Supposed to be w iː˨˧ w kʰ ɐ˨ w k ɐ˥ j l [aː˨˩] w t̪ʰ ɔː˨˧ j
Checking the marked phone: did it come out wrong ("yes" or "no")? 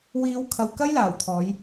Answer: no